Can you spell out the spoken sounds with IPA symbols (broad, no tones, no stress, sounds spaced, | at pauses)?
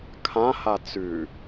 kʰ ã h a t͡s ʉ